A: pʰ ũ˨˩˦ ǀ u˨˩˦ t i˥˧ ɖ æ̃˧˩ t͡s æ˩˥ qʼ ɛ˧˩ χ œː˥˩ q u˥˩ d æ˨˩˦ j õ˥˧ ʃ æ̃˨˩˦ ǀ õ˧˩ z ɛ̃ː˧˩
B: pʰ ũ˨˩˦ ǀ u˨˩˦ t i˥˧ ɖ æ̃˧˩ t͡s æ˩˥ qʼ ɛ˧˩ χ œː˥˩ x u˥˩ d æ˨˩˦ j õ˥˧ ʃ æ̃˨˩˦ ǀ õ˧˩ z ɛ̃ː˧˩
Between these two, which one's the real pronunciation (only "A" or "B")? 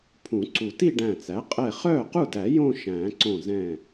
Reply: A